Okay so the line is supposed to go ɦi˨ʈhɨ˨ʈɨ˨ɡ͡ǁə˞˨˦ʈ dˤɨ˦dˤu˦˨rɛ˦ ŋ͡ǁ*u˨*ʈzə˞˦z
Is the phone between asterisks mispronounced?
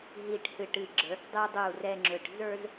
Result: yes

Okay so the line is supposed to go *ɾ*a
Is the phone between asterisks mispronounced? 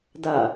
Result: yes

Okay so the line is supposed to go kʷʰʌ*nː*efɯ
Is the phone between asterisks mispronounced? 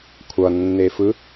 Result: no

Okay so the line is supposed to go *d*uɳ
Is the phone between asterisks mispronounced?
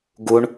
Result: yes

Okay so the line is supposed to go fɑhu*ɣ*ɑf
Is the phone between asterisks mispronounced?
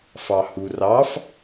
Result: yes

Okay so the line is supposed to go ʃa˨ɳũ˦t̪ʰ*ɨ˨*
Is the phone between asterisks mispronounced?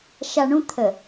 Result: yes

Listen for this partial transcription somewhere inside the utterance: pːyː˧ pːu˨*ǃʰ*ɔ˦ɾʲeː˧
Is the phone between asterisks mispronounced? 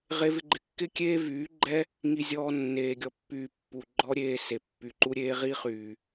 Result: yes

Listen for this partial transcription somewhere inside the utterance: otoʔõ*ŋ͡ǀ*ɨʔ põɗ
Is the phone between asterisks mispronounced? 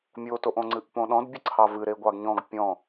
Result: no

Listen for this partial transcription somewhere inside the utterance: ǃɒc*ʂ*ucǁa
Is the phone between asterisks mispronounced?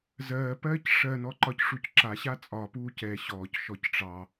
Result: no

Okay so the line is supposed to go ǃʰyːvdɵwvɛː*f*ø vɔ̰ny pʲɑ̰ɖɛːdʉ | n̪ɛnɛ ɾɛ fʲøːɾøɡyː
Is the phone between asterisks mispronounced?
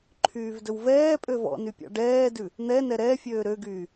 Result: yes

